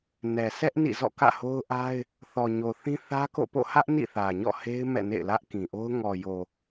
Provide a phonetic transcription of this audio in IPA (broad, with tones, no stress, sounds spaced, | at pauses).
n ɛ˨ sʰ ɛ˦ ʔ n ḭ˦˨ z ɔ̰˦˨ k ä̰˦˨ h o˦ ʊ̯ ʔ a˦ ɪ̯ | θ ɔ˨ ɲ o˨ θ ĩ˦ θ ä˦ k o̰˦˨ p o̰˦˨ h ä˦ ʔ n ḭ˦˨ θ ä˨ ɲ ɔ̰˦˨ h e˦ ɪ̯ m ɛ̰˦˨ n ḛ˦˨ ɪ̯ l ä˦ ʔ k ĩ˨ ʔ o˦ ʊ̯ ŋ ɔ˨ j o˨